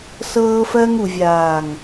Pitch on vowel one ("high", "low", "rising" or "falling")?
high